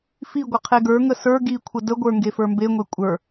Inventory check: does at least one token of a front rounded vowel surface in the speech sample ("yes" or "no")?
no